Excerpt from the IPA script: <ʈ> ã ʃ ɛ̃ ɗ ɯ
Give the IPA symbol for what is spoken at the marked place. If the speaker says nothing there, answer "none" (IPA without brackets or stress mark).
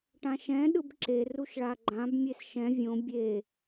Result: ʈ